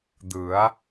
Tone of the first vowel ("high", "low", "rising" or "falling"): rising